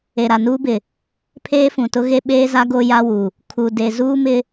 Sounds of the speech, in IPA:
e˨ɾa˨nuː˦bɪ˨ | pʰeː˦fũ˨tʊ˦ɣe˦ ɓeː˦za˦ ɡo˦ja˦wu˨ | kʰu˨ de˨ zuː˦mɪ˦

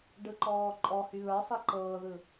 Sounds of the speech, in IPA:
ɖɯǃɔːǃʼɔ hyβə˞sˤi ǃɤːðɯ

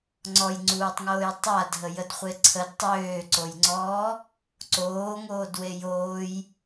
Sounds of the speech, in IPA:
ŋ͡ǀɔjŋ͡ǀuːtˤŋoːj tˤadʱəjədχʷe ǀʰəd tˤøːǀojŋ͡ǀɔː | ǀoːŋoːdwe joːj

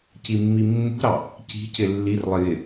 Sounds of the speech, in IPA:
cimːimːṳɾɑ | ci̤cɪ lːirlˠɪ jɪ

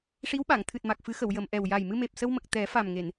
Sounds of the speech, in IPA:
ʂi˧˥wɓa˨˩˨ŋ t̪ʰɨ˨˩t̚ma˨˩k̚fɨ˨˩˦xə˨˩˨w jə˨˩˨mʔɛ˨˩w ja˨˩jmɨ˧me˨˩p̚ sə˧wmə˨˩k̚ t̪ɛ˨˩˦fa˨˩mŋe˨˩˨n

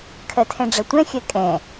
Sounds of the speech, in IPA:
kʰɜtʰɛ̃ɖ͡ʐɐtʷɛ̃ xʲɜkʼɛ̃

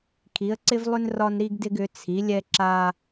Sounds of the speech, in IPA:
kʰi˨˥ə̯ǀɪ˥vlˠʏ˥n rɒ˥nɾi˥ɡdɪ˥ɡ ʏ˨˥t͡sʰi˨˥lʲɛ˥ ǁa˥

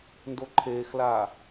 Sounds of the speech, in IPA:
ndoǃʰeːxlaː

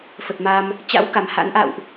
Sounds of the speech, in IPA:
fə˨˩t̚ma˧m | t͡ɕa̰˧˥w ka˨˩mha̰˧˥n ʔa̰˧˨wʔ

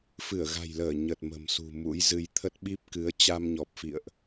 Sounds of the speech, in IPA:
fɨ˧˩ə̯ɣa̤˨˩jləː˧˩ ɲə˨˩t̚ mə̤˨˩msṳ˨˩mṵ˧˥j zɨ˧j t̪ʰə˦˥t̚ɓi˦˥p̚ kɨ˨˦ə̯ t͡ɕa˧mɲɔ˨˩p̚fḭ˧˨ə̯ʔ

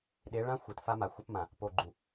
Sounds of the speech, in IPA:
ɗe˨˦ɭã˦xʷe˨t fa˦ma˨xʷɐ˦pmã˨ | po˨ɡ͡ǃu˨

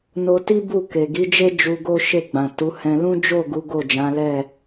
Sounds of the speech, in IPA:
no˧ti˦ bu˦˨ke˨ɡi˨˦d͡ʒe˦ d͡ʒu˧ɡo˦ ʃe˦˨ɡ͡bã˨tu˨˦hɛ̃˧ lũ˦d͡ʒo˦˨ ɡu˨˦ɡo˦˨d͡ʒã˨˦lɛ˦˨

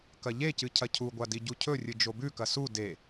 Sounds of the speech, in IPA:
kɐʎecɨ cʰɐcʰuɡʷadi ɟucʰɵrʲɨ d͡ʒobʉkɐ su de

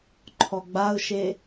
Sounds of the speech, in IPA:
ǃʰɔɡ͡baʊ̯ʃe

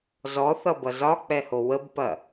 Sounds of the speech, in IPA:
zɔθʌbʌ zɒk͡pɛho wəbpɐ

